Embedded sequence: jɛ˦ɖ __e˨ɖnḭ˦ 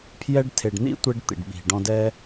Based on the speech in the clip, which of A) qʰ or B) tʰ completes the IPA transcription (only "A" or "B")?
B